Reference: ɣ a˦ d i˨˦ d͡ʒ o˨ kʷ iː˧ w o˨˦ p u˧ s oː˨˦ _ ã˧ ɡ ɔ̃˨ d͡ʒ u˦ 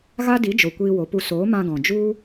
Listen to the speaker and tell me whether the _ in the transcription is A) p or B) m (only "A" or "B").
B